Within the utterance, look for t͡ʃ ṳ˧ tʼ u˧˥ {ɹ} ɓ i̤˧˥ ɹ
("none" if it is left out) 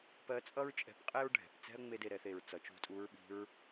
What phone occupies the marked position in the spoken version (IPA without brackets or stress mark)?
ɹ